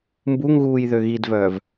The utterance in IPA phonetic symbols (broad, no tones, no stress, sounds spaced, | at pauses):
m b u ŋ ɣ uː j ð ø ɣ i d v œː v